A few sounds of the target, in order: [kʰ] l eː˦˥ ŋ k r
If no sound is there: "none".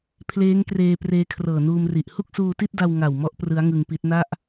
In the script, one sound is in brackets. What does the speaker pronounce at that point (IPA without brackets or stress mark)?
pʰ